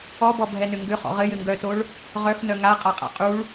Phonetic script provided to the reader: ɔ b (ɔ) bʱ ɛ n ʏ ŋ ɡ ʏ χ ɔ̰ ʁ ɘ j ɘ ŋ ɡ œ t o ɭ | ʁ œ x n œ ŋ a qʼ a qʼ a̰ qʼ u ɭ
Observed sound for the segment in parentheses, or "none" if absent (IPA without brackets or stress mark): ɔ